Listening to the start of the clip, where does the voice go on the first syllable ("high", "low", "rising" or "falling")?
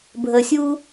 low